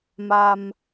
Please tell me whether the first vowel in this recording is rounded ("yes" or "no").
no